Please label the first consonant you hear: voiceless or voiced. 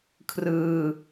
voiceless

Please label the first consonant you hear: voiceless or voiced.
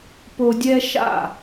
voiceless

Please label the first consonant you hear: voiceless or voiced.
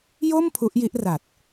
voiced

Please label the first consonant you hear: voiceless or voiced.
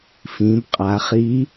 voiceless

